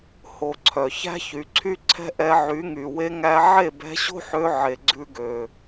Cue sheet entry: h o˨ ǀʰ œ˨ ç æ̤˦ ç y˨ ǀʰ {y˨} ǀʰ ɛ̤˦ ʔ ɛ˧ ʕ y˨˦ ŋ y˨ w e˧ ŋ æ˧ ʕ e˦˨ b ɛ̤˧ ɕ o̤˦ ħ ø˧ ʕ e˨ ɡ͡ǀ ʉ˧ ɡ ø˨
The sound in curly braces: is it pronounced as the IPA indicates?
no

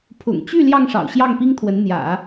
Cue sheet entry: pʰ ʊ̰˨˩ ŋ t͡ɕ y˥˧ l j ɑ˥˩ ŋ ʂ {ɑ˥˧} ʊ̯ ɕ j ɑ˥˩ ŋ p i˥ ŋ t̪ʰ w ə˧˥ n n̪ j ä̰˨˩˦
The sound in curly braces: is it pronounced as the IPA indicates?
no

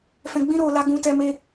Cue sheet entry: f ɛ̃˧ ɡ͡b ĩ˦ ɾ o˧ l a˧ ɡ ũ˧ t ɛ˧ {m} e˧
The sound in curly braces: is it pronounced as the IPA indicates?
yes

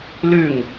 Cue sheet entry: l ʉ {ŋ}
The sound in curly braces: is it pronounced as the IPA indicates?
yes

